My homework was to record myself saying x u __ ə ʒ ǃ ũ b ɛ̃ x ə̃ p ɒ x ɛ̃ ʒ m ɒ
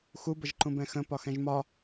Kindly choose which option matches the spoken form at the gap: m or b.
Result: b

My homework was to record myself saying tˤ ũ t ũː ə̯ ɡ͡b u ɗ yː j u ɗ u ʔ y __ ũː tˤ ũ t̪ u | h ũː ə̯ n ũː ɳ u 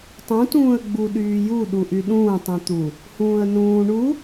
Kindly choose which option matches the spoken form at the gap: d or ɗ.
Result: ɗ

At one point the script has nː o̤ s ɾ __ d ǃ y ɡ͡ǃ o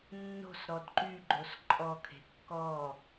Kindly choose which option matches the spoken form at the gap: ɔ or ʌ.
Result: ɔ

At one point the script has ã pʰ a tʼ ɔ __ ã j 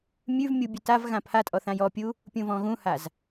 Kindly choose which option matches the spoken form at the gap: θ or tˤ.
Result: θ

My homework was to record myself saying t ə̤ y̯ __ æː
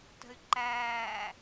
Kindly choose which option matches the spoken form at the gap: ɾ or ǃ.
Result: ǃ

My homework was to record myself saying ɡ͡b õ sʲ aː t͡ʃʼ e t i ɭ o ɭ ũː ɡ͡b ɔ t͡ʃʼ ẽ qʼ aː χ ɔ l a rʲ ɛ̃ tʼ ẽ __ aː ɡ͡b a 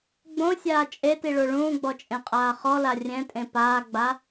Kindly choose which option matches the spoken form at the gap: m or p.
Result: p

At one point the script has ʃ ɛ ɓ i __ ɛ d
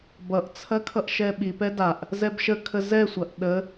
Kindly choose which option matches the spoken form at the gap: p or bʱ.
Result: p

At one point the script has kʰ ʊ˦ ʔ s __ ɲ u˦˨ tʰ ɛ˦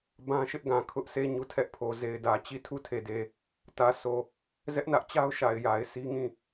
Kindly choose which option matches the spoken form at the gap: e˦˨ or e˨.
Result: e˦˨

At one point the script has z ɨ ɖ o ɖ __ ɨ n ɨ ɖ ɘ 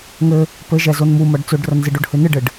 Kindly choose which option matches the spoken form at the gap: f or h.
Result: h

